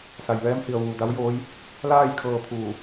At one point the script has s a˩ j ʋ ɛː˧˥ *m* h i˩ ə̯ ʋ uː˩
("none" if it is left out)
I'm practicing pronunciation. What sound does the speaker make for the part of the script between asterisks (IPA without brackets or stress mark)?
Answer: m